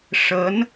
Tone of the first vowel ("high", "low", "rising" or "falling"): rising